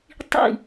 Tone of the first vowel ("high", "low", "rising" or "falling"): falling